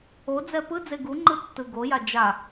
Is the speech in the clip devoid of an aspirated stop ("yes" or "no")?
yes